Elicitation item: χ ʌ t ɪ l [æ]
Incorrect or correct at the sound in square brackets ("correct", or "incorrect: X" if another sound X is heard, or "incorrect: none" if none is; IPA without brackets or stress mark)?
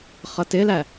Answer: correct